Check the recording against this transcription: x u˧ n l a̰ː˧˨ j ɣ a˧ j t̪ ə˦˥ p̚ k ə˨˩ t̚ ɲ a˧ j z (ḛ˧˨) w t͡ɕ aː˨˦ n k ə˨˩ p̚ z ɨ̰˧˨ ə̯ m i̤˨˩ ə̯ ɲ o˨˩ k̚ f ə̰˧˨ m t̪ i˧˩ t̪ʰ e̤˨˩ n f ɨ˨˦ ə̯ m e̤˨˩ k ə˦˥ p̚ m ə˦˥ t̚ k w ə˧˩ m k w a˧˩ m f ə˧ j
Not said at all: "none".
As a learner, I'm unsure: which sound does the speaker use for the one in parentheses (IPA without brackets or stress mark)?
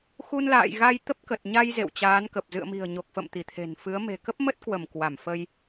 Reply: ḛ˧˨